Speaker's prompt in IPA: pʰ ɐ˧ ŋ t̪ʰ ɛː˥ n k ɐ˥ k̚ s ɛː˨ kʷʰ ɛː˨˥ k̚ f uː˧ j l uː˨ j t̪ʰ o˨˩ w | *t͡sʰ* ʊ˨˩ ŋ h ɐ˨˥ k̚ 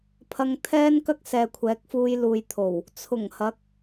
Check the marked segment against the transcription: correct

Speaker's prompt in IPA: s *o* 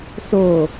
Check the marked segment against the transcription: correct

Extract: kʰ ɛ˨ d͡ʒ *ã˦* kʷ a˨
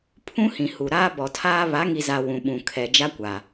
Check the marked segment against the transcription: incorrect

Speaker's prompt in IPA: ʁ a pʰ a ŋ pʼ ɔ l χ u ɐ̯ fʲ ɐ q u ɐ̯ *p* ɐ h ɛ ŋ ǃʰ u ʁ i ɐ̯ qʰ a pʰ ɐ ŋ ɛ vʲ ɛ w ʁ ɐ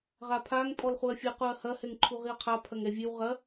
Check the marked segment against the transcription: incorrect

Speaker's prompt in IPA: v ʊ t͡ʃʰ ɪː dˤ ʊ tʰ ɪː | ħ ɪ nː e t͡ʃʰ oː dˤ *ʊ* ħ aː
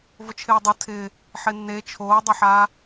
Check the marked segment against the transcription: correct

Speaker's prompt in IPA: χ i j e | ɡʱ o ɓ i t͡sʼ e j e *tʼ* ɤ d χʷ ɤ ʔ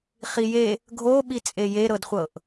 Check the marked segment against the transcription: incorrect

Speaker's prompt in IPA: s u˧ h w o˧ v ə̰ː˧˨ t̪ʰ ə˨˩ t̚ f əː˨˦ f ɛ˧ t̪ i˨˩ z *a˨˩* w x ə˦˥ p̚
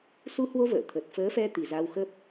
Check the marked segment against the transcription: incorrect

